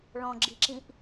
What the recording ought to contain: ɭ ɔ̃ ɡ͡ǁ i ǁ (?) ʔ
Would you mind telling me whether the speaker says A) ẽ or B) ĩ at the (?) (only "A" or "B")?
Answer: B